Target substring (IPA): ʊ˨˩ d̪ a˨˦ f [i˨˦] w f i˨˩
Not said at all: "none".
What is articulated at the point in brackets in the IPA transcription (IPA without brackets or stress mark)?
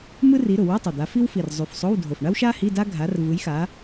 i˥